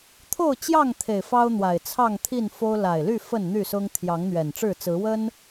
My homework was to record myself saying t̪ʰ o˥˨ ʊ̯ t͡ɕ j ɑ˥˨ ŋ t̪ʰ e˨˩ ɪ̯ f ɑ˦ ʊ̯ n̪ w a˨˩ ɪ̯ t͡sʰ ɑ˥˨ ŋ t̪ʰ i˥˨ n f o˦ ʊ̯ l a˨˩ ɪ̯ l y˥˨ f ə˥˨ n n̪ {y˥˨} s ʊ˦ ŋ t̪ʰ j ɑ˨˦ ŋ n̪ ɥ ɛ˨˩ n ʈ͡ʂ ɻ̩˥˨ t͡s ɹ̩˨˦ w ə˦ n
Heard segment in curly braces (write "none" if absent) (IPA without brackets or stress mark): y˥˨